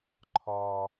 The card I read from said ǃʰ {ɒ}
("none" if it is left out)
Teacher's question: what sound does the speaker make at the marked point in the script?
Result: ɒ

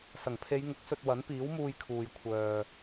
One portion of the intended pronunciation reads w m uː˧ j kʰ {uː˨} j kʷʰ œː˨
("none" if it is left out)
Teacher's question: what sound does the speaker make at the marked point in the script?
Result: uː˨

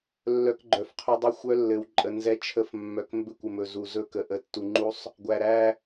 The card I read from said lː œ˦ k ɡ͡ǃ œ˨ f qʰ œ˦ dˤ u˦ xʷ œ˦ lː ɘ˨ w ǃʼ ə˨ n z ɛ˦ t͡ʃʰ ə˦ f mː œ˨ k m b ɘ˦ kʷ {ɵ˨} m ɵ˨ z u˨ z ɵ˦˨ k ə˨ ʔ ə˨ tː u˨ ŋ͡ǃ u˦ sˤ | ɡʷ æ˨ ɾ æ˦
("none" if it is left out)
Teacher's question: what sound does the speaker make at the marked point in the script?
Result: ə˨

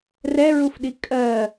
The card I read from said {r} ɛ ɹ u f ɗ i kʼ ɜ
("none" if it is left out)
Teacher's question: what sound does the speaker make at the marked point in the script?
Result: r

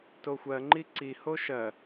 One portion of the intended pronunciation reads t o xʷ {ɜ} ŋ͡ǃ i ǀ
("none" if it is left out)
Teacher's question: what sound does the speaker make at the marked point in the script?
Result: ɜ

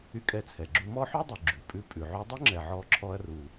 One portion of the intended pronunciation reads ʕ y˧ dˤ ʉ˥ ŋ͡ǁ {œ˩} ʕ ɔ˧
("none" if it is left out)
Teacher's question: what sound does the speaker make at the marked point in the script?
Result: ɛ˩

